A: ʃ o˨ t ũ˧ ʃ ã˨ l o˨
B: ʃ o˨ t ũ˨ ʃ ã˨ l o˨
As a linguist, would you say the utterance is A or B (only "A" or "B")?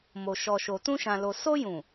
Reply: A